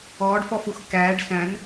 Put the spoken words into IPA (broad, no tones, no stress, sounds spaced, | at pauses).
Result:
ɔː ɖ f ɔ f u x k æː ɖ s æ̃ n